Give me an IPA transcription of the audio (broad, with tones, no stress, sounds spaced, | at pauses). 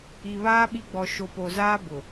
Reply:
i˨ β aː˦ ɓ i˦ ɡ͡b ɔ˨ ʃ o˨ p o˨ z aː˦ b ʊ˨